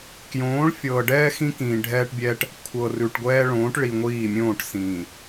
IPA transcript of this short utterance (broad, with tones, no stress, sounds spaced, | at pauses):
k j õː˨˦ ɭ fʲ ɤː˨ ɖ ɛː˦ x ĩ˦ k ĩː˨ ɖʱ ɛː˦ ʈ bʲ ɛː˦ ʈ | kʷʰ ɤ˨ r ʉ˨ ʈ ɡʷ ɛː˦ ɭ õː˨˦ ʈ ɭ i˨ ŋʷ iː˦˨ mʲ õː˦˨ ʈ s ĩː˨